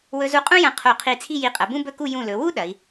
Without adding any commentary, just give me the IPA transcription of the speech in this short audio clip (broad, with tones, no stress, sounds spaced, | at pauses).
w ɵ˧ z u˧ qʼ ũ˥ j ɐ̃˧ qʰ o˧˩ qʰ i˧˩ t͡sʰ i˥˧ j i˧˩ qʼ ɐ˩˧ b ũ˥ b ɵ˥˧ k u˥˧ j ũ˧˩ l ɵ˩˧ w u˥ ɗ ɐ˩˧ i̯